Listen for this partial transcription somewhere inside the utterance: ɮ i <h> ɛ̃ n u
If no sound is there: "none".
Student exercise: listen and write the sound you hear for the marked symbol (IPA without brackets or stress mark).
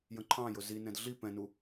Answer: p